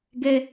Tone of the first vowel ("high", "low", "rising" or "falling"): high